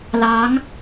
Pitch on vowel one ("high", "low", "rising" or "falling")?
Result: rising